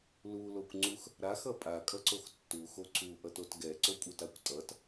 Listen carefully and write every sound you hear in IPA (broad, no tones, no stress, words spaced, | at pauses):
lulokʷŋ͡ǀux | ɾaxʌ pʼakʼʌǀox tːuxo ǀʰuʔʌtot ɡɛǀokʷʼɯtakʷ tʼʌt